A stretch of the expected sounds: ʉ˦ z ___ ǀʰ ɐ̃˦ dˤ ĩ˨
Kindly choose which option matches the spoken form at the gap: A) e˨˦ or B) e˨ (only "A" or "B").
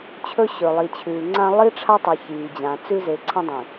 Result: A